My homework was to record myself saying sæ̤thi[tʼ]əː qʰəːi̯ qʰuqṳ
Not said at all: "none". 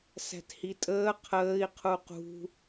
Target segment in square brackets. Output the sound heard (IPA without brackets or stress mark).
tʼ